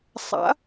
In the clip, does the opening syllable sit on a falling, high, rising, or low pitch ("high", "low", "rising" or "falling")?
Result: rising